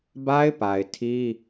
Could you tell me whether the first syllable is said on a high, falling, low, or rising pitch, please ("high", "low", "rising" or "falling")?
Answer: high